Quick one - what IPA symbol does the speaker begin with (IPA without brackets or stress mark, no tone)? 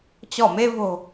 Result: t͡ɕ